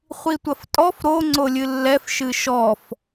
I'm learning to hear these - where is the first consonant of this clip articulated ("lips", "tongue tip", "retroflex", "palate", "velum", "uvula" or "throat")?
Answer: uvula